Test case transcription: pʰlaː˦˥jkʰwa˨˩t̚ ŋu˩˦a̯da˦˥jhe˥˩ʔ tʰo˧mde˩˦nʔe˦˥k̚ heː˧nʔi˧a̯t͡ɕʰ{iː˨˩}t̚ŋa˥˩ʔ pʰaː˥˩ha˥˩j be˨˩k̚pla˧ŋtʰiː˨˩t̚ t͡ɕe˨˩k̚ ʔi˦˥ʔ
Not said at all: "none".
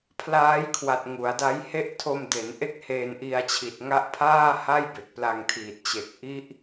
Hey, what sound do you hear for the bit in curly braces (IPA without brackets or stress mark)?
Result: i˨˩